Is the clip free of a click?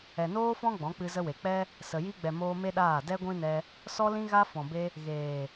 yes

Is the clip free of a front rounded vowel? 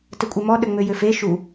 no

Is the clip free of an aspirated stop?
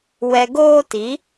yes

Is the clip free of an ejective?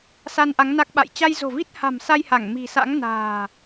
yes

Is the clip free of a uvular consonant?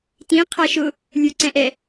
no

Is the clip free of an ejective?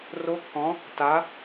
yes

